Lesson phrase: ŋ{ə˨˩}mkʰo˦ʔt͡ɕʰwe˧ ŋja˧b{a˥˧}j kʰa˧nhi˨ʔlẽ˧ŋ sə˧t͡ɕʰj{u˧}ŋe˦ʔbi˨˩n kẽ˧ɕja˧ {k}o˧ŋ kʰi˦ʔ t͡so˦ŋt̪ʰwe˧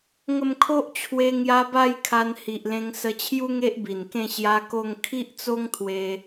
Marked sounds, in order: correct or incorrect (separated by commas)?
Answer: incorrect, incorrect, incorrect, correct